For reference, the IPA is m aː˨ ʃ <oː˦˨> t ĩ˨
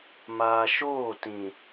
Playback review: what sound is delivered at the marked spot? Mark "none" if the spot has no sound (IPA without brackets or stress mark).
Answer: oː˦˨